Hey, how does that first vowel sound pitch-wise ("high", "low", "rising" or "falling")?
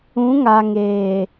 rising